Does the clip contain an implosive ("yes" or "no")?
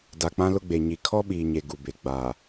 yes